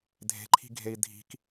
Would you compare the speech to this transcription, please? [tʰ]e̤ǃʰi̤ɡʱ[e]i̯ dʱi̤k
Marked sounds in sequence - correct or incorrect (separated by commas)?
incorrect, correct